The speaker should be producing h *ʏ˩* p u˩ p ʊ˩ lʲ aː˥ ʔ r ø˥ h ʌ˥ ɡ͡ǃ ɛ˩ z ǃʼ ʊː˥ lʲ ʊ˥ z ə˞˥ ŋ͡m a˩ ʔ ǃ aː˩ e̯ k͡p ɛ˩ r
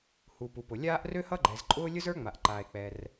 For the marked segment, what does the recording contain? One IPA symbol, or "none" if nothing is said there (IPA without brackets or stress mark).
u˩